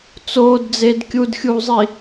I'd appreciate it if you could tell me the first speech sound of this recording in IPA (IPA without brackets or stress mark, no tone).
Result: t͡s